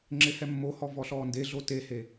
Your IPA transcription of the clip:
ŋ͡ǁ ɪ h ɛ mː o h ɔ v ɔ ɬ ɔː n d e ɮ o t e h e

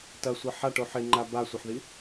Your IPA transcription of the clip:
t ɐ sʷ ɐ ħ a ʈ o ħ e ŋ͡ǃ a b a sʷ ɐ ħ ð i

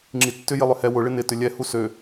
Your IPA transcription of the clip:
ŋ͡ǁ i tː ʏ j ɪ lˠ ʏ h ɛ w ʊ ɭ ɪ n ɪ t ʏ lʲ ɛ h u s ø

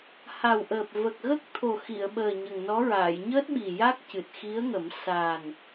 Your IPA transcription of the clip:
h a˨˩ w ʔ əː˨˩ p̚ v ə˨˩ k̚ ɣ ə˦˥ k̚ t̪ʰ o˨˩ x i˨˩˨ ə̯ ɓ əː˨˩ ɲ ə˨˩ ŋ n ɔ˧˥ ɹ aː˨˩˨ j ɲ əː˦˥ t̚ ɓ i˨˩ j a˦˥ k̚ c ɨ˨˩ t̚ x i˧˥ ə̯ ŋ ə˨˩˦ m s a˨˩ n

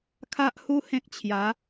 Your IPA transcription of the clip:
kʰ a˦ ʔ h u˦ h ẽ˦ k̚ t͡ɕʰ j a˨˦

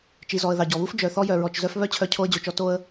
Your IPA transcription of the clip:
t͡ʃ i˩ z ɔ˩ ə̯ ð ɑ˩ ɟ ɔ˩ β u˥ f d͡ʒ œ˩ θ ɔ˧ j œ˩ ɹ ɔ˩ t͡ʃ z œ˧ f β œ˥ t͡ɕʰ œ˧ cʰ o˧ ə̯ d͡ʑ o˩ t͡ʃ ɔ˧ t o˧ ə̯

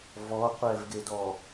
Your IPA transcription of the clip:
v ɔ qʷ ɛ v ɡ e d ɔ

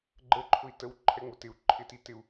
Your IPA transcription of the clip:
ɡ͡ǃ ə ǃʰ ʊ i̯ t ə w ǃʰ ɛ ŋ͡m ʊ t ɪ u̯ ǃʰ ɪ t i t ɪ u̯

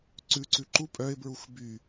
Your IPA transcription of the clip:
ǀ ʉ ǀ ʉ ǃ u pʼ œ ɪ̯ b ɹ u x b y

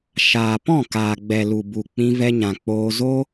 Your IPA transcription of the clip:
ʃ aː˨ p ɔ̃˦˨ k aː˨ ɡ͡b ɛ˨ l u˨ b u˨ k͡p ĩ˧ v ɛ˧ ɲ ã˨ k͡p oː˧ z o˦

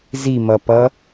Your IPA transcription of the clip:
z i m ʌ p ʌ

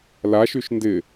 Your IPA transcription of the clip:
l a ʃ y ʃ n d ɪ

